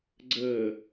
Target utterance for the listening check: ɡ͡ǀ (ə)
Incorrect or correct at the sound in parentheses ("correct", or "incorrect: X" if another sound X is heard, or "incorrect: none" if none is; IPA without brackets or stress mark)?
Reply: incorrect: əː